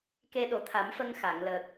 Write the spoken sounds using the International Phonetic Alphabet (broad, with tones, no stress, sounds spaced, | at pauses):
k e˧ ɗ o˨˩ t̪ʰ a˨˩˦ m f ə˧ ŋ x a˨˩˨ ŋ l əː˨˩ k̚